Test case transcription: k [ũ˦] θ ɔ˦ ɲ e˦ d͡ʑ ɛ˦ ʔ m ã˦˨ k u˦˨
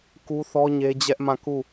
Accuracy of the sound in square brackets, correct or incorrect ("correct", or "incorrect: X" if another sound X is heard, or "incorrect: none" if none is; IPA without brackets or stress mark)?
incorrect: u˦